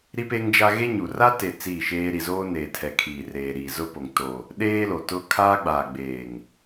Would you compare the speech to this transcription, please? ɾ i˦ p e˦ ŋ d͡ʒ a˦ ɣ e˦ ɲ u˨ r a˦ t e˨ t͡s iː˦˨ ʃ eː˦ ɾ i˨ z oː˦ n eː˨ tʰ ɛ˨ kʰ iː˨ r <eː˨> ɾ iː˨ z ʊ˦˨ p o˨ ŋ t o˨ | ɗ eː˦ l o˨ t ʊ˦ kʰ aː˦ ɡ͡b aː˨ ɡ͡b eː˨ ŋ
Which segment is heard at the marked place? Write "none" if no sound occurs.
eː˨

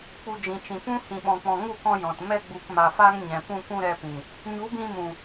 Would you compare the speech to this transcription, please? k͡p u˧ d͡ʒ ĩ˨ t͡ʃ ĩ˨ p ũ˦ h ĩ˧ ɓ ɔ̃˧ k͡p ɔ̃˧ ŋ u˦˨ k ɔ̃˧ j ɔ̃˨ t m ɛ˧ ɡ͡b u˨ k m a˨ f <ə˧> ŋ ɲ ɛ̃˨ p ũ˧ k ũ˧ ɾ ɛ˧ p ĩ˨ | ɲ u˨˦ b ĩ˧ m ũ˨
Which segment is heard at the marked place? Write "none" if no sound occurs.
a˧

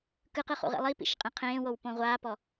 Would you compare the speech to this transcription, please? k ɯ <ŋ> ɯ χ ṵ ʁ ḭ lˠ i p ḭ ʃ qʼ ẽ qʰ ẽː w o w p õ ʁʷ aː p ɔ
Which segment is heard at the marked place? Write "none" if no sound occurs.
q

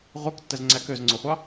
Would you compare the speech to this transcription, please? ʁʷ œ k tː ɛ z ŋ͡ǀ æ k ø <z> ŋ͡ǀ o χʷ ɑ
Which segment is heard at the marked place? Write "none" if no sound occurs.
z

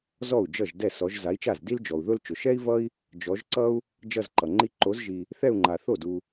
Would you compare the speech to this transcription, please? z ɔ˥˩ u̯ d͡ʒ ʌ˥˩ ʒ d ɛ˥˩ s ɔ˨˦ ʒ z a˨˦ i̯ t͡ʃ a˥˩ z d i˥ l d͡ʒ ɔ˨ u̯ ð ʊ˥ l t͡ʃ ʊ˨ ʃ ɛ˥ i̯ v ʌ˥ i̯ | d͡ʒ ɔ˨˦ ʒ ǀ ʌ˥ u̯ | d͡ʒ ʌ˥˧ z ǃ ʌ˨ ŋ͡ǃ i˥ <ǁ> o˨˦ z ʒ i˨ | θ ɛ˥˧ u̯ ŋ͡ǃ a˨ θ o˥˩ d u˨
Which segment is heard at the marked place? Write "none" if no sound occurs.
ǃ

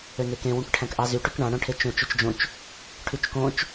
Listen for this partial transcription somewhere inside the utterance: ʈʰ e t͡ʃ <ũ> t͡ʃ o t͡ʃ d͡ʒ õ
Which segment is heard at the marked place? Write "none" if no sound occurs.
õ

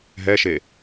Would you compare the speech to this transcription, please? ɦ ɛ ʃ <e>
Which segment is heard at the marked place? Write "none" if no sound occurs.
e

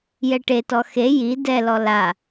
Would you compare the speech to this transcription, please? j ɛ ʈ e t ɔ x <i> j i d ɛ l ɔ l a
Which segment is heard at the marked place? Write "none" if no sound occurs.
e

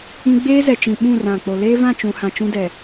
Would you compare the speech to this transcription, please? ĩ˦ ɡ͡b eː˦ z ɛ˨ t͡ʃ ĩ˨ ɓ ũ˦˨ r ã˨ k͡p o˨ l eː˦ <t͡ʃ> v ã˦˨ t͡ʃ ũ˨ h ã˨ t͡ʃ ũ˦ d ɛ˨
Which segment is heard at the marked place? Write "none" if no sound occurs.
none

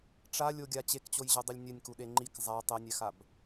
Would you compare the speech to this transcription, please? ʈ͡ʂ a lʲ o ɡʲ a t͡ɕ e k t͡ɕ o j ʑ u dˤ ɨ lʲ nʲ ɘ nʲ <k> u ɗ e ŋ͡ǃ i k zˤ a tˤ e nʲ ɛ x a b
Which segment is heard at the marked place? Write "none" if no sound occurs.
k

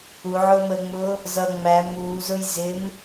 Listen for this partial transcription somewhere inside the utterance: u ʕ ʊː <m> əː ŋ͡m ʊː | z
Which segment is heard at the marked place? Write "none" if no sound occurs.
m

